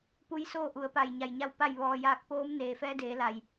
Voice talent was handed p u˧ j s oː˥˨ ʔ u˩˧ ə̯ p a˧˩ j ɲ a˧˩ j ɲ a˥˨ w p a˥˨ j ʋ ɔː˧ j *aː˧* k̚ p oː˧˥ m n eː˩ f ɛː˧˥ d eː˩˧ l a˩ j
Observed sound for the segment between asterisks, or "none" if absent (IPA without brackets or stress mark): aː˧